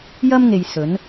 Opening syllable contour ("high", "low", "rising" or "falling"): high